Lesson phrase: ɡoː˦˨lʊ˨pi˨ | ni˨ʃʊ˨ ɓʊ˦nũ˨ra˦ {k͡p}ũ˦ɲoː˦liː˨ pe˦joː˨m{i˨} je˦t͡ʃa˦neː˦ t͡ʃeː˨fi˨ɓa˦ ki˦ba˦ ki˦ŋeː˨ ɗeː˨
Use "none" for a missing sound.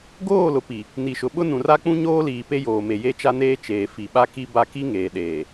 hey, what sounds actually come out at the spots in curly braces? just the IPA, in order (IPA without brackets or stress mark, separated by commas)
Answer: k͡p, e˨